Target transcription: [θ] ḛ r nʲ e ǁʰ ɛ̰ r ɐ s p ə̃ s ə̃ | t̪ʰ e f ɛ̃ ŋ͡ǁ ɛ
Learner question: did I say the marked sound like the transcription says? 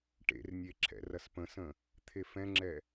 no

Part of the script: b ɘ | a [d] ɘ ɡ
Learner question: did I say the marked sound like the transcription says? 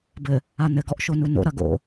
no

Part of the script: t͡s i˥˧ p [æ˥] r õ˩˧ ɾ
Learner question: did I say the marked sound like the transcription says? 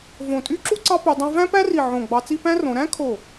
no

